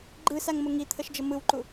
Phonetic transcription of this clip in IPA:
ɡ͡ǃɯsaŋmʊ ŋit̪ʰəʃd͡ʒə mɯwǃu

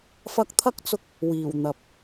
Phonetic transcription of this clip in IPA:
fɐ˧k̚t̪ʰɐ˥k̚t͡sʊ˧k̚ | wiː˨˩wn̪ɐ˨p̚

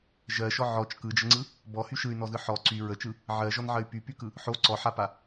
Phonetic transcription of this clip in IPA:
ʒɜʃɔ ʕɔt͡ʃ kɯd͡ʒəŋ͡ǀɯ | bɔhy ʃɯy̯nɔzɯ ħɔ ǀy ɹət͡ʃɯ | ʕɜʒɔnʕɜy̯ pypykɯ | ħo ǀɔħapa

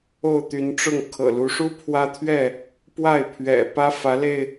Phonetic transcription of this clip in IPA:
o˥˨ʊ̯t̪y˨˦nʈ͡ʂʊ˥˨ŋ kʰɤ̰˨˩lu˨˦ʂu˦ pʰwä˦t̪ʰɥɛ˥˨ | pwa˥˨ɪ̯pʰɥɛ̰˨˩pä˦ fä˨˦le˧ɪ̯

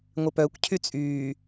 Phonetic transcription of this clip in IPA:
ŋʷɪpœkʷ cʰyt͡sʼyː

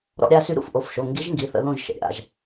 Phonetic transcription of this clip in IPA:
ɾɔ̰˦˨ɾʲa˦˨ sy˧˥ɾṵ˦˨fʔo˩˧˩fʃo˩˧˩ ŋɡi˧˥ʒŋɡi˩˧˩θə̰˦˨ðõ˦˨ʒ ʃə̰˩˧˩ɾʲa̰˩˧˩ʒ

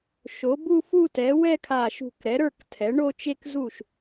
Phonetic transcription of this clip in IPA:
ʃo˩˥bu˥˧fu˥˧tɛ˩˥ wɛ˥˧kʰa˧˩ʃṳ˧˩k ɾɛ˩˥ɾə˞˥˩ktʰɛ˩˥ ɳo˥˧t͡ʃe˥˧kzu˥˩ʃ

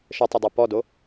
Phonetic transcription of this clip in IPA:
ʃətˤɛdˤu pɔdo

